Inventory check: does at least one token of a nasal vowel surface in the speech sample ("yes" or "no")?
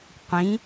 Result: yes